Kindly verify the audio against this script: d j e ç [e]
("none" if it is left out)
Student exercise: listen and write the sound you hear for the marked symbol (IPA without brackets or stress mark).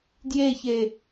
e